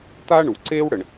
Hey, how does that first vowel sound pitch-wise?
high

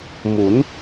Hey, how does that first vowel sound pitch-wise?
rising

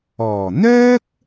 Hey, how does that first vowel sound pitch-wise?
low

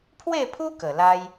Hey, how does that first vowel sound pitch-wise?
falling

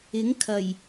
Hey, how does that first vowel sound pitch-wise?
rising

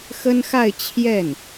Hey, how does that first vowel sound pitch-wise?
high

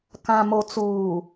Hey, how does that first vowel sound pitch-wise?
low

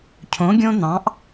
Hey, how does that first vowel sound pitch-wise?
rising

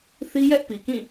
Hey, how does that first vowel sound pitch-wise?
high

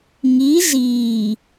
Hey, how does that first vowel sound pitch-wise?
rising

